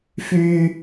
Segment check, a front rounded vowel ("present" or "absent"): present